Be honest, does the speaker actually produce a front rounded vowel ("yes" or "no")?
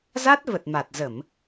no